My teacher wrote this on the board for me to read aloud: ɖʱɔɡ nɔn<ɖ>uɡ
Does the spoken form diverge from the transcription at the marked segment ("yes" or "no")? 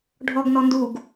yes